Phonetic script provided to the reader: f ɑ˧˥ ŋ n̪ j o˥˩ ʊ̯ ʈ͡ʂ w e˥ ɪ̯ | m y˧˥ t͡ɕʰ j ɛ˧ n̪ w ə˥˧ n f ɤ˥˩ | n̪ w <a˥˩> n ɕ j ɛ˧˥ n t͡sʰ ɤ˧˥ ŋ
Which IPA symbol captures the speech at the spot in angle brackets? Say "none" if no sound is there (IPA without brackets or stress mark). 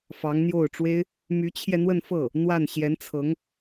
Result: a˥˩